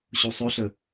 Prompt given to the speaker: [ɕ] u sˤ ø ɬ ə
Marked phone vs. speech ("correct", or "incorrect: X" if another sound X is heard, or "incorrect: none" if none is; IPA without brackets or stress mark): correct